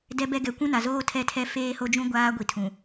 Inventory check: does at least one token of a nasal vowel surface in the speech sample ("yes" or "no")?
yes